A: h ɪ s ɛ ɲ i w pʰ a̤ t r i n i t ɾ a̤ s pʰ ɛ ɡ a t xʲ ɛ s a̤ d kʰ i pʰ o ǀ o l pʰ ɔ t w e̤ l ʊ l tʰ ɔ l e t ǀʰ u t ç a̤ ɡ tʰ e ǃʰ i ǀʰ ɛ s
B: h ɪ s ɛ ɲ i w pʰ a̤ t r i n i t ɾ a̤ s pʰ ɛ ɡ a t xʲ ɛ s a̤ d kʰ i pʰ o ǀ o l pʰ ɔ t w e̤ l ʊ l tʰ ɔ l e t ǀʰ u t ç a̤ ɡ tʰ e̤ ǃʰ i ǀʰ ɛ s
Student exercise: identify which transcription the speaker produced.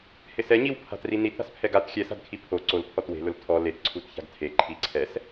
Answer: A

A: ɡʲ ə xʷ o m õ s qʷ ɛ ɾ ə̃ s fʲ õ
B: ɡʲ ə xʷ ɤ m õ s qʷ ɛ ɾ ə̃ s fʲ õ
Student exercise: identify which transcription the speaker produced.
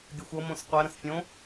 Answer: B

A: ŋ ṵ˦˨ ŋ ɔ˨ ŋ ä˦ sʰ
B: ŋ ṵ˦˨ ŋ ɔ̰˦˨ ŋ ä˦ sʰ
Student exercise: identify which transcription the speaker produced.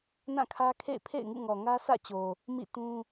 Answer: A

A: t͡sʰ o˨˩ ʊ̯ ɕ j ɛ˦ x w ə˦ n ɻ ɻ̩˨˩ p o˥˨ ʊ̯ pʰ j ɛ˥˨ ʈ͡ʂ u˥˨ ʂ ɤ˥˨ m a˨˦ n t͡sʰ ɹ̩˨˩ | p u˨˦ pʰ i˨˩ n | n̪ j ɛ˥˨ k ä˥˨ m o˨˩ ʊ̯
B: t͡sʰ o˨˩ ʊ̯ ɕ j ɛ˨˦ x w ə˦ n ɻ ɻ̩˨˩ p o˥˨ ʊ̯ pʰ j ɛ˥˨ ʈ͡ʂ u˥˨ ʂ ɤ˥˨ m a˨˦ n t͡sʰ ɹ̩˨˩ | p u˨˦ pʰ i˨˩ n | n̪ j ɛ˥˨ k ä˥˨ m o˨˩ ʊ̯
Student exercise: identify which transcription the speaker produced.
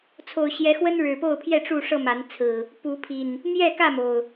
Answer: B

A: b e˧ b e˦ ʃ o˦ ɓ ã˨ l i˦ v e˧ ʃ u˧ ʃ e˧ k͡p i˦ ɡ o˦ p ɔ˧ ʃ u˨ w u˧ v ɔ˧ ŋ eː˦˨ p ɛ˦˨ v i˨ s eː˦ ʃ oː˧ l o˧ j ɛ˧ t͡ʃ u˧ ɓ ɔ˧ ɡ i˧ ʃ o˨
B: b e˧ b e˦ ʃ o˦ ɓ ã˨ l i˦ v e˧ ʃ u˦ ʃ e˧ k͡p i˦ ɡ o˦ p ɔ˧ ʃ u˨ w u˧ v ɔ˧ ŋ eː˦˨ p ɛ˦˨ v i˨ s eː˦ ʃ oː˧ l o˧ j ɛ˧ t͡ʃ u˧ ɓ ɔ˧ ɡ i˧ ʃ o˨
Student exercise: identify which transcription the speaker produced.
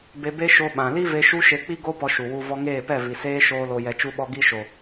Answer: B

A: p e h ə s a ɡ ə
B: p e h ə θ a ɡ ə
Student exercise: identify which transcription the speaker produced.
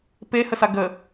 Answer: A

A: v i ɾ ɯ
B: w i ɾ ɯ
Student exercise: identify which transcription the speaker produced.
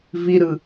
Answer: A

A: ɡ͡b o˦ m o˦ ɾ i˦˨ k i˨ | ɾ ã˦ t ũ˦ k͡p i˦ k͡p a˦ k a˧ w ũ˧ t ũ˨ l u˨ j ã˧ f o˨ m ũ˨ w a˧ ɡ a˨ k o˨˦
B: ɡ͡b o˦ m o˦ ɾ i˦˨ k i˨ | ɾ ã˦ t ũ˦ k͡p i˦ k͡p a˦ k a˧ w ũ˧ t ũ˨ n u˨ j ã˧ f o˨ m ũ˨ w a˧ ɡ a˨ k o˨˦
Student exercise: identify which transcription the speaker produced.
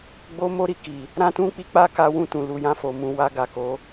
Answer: A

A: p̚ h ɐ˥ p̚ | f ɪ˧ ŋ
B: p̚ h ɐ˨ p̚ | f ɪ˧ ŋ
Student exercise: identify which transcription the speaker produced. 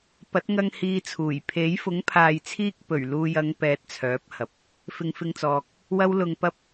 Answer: B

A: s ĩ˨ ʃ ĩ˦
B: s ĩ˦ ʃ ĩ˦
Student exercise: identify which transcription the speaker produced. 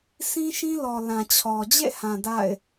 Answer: B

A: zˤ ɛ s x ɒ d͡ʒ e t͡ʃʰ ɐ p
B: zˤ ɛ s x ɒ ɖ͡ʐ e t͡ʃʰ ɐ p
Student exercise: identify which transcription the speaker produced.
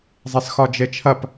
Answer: A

